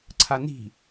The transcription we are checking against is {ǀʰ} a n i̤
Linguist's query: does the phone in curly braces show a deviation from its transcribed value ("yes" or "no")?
no